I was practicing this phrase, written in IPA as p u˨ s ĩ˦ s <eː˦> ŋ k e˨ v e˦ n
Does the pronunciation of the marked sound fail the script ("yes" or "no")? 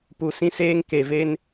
no